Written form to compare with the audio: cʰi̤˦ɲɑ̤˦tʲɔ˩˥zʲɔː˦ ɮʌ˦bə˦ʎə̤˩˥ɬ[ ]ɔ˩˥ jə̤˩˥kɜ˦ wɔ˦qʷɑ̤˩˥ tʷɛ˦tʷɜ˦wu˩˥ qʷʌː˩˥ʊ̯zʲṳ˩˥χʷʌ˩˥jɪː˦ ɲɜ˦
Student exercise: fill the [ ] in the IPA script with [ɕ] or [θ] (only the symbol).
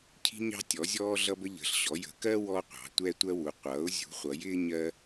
ɕ